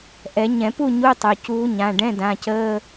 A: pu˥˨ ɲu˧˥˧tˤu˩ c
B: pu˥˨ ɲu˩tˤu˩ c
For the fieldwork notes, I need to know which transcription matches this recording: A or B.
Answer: A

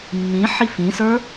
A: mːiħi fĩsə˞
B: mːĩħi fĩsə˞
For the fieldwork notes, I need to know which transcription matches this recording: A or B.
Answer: B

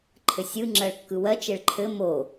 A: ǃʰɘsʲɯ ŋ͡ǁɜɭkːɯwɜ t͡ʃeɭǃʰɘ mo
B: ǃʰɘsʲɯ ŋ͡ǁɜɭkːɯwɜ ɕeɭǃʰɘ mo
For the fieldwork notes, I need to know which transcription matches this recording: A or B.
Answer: A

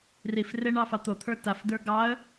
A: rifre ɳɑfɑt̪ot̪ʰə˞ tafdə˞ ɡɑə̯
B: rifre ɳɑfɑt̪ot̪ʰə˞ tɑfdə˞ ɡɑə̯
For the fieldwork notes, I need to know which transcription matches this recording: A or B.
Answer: A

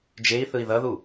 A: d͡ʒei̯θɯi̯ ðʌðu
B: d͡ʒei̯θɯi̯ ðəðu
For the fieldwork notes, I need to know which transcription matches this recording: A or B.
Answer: A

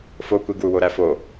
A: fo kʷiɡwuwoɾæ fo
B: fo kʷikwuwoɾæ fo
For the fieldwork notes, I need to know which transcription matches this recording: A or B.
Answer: A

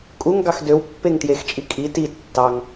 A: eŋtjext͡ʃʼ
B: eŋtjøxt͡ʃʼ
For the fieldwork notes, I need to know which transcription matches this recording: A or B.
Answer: A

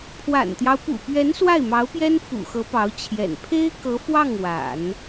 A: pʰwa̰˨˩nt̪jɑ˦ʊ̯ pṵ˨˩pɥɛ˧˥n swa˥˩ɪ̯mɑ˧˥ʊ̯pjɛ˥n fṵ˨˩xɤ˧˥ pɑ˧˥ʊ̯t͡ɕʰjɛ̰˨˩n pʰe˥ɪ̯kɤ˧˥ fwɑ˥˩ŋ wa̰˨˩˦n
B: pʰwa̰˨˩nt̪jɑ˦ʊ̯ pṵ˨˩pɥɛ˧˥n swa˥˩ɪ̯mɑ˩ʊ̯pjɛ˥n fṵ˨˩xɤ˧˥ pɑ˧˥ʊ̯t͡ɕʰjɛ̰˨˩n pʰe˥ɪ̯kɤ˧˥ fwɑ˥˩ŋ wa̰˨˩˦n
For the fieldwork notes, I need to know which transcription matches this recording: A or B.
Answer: A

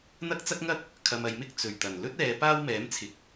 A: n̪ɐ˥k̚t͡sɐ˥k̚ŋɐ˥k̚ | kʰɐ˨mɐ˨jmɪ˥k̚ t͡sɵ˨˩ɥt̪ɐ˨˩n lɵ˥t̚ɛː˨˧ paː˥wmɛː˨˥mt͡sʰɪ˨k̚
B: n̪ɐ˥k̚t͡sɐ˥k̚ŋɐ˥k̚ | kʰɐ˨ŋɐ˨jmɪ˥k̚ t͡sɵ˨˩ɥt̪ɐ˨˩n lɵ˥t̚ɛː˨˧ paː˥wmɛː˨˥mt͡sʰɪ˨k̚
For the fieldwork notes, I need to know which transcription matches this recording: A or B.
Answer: A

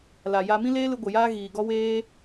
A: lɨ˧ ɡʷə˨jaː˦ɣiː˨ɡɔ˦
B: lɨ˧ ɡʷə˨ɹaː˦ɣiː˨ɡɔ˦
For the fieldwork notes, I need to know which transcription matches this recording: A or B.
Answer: A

